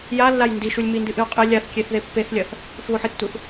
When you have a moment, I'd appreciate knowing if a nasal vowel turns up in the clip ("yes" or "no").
no